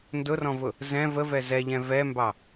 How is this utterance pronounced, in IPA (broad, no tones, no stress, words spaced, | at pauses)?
ndʊrɔ̃vʊ | zɛ̃ vəvɛ zɛʎɛ̃ vɛmbɑ